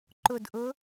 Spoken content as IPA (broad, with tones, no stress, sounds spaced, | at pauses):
ǃ ʊ˧˩ d ʔ ʊ˧˥